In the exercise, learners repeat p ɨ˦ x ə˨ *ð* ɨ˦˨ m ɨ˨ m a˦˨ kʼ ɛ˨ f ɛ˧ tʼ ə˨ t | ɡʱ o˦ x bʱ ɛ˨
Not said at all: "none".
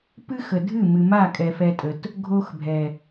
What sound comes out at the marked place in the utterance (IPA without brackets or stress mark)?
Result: dʱ